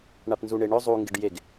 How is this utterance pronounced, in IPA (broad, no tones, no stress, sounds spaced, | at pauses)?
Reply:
ɳ a p n z u ɳ e ɳ ɵ zˤ u ŋ ɡ e ɖ j e ɡ